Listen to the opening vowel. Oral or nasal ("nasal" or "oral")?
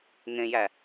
nasal